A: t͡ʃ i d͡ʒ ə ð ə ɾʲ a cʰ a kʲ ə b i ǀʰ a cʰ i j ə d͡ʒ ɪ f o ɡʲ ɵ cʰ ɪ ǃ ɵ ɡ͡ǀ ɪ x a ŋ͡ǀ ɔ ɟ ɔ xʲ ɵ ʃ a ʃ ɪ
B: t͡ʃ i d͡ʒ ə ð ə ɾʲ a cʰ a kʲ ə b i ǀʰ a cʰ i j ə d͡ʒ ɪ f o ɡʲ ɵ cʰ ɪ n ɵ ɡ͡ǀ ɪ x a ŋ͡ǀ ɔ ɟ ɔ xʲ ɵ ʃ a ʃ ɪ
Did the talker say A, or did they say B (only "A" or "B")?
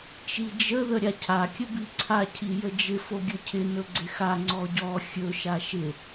B